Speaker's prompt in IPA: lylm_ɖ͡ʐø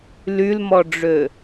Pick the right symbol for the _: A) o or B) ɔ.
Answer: B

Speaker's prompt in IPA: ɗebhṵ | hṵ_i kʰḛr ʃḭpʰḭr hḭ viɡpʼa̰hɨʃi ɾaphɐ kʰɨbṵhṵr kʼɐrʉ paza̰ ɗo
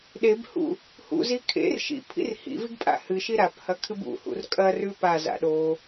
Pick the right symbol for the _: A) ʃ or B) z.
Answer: B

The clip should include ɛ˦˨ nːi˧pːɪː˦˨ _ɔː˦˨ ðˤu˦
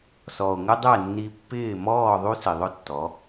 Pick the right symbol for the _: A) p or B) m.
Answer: B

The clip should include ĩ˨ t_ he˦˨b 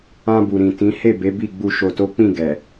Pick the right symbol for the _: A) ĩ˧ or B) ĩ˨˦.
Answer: B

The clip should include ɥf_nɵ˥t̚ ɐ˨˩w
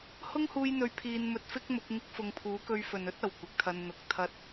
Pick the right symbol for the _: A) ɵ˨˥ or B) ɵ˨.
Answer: B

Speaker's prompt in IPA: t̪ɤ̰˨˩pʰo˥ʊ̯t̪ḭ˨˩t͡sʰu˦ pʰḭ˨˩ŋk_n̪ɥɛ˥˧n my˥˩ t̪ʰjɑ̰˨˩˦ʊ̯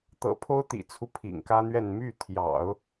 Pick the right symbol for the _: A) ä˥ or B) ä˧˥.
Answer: A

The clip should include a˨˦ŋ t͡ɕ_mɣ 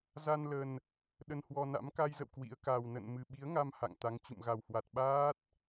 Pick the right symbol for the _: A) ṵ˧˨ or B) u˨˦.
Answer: A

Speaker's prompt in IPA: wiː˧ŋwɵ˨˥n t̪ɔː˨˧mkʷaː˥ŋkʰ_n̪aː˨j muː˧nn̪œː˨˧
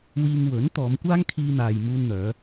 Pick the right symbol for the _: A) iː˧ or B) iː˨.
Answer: A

